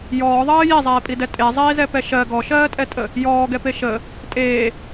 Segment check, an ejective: present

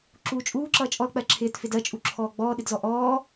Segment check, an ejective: present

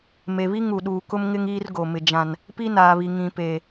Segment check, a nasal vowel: present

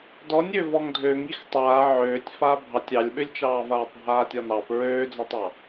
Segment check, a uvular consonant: absent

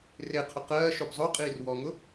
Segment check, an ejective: present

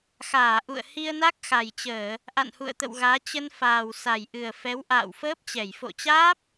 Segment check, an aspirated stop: absent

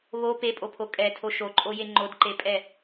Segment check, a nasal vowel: absent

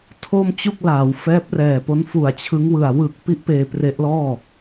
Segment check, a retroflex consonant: absent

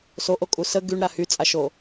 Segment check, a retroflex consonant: present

